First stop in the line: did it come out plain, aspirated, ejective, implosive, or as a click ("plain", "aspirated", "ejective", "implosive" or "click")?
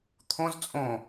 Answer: aspirated